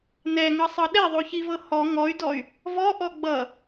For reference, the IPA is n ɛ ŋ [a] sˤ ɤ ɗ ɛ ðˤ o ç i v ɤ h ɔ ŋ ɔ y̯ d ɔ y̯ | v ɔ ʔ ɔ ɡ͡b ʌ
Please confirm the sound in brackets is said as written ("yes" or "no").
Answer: no